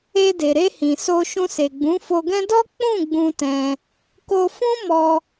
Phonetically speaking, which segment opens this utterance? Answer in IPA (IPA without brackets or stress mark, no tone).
e